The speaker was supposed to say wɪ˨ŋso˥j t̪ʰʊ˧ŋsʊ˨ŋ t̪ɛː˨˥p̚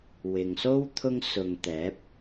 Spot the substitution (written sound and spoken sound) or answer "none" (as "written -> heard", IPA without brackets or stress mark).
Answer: j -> w